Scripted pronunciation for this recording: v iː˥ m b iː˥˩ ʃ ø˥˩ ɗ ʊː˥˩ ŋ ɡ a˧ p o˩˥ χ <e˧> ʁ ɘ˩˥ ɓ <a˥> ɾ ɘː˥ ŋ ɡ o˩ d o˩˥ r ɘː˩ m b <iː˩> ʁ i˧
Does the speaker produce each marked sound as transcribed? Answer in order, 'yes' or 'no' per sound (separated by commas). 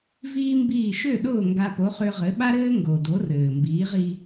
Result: no, yes, no